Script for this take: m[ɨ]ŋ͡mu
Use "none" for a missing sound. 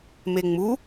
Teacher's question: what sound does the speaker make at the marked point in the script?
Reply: e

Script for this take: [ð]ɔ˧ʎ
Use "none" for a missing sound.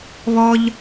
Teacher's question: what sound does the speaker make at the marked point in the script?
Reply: β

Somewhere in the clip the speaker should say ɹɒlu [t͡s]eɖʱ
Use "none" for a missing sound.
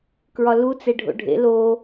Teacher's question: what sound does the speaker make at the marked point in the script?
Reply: t͡s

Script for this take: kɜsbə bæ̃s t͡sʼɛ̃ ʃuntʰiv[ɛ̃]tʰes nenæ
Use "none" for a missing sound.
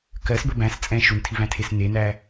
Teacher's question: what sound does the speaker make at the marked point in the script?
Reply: æ̃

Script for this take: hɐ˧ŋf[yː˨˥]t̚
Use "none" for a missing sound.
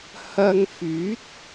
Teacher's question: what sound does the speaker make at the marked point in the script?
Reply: yː˨˥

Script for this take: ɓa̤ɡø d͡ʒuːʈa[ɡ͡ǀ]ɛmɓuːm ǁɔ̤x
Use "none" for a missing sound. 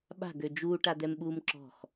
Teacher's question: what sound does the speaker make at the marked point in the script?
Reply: d̪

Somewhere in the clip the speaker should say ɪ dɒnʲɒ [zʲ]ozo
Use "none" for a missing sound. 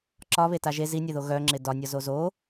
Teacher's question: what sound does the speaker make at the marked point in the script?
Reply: z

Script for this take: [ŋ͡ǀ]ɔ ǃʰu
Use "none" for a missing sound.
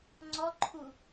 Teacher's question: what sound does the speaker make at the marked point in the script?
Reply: ŋ͡ǀ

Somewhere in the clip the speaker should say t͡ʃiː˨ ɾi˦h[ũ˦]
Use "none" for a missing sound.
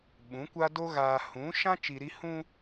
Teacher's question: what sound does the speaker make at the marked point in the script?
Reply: ũ˦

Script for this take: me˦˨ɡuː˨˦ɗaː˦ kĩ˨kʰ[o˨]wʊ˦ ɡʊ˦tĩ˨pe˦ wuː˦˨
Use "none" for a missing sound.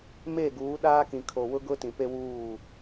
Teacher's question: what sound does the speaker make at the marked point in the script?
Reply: o˨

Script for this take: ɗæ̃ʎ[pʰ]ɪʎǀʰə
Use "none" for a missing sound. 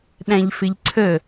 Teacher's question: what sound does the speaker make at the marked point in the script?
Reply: f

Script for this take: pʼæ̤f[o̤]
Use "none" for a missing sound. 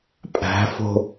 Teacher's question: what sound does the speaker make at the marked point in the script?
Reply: o̤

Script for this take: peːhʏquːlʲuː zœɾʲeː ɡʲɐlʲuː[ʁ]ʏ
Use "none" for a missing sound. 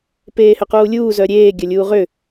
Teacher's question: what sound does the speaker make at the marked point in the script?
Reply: ʁ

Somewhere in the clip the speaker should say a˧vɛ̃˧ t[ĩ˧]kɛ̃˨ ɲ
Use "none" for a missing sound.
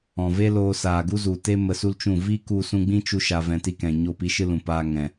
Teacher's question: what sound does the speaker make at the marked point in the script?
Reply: i˧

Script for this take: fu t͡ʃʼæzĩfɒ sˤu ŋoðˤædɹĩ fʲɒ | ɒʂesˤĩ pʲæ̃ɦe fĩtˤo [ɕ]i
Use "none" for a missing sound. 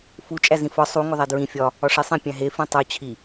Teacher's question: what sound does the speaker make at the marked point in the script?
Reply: t͡ɕʰ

